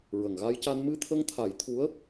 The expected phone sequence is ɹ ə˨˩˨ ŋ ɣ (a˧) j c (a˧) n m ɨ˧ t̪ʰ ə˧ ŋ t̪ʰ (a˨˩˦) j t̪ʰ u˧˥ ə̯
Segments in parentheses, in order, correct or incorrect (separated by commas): correct, correct, correct